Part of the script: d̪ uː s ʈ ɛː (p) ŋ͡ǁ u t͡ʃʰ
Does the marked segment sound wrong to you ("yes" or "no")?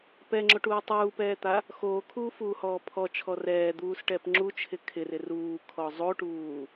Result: no